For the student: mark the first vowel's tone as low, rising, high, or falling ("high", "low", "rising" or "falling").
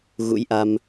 rising